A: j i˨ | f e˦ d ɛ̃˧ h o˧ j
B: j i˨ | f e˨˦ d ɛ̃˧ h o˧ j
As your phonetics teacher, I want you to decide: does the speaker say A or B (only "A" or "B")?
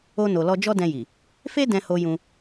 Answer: A